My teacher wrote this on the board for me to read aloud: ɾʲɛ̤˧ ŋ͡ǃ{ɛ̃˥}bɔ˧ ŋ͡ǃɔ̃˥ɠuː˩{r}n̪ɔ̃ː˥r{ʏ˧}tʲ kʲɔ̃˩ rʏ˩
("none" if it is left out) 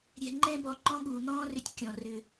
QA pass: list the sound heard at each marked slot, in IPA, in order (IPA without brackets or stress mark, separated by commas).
ɛ̃˥, none, ʏ˧